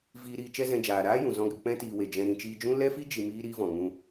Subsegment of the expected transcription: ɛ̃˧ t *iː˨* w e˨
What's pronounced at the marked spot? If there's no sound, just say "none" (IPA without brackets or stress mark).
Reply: iː˨